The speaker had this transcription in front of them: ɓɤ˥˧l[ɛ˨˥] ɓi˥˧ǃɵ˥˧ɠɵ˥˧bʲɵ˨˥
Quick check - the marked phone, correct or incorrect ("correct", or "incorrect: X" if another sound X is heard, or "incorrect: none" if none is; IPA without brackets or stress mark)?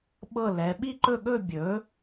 correct